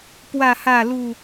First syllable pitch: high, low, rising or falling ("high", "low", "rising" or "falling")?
falling